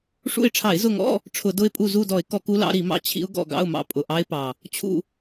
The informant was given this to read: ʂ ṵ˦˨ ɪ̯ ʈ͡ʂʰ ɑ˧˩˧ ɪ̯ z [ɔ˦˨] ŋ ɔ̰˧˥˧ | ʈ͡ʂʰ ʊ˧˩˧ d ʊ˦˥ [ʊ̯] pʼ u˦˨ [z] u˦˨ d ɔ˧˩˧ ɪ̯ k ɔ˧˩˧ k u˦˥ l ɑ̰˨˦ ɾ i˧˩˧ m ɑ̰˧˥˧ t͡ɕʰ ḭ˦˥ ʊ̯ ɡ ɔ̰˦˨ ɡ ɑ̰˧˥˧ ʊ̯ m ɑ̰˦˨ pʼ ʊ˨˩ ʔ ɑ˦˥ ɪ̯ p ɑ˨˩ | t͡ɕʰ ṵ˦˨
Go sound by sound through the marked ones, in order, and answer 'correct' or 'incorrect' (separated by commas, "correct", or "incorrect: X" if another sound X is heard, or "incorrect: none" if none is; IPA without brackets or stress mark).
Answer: incorrect: ʊ˦˨, incorrect: ɪ̯, correct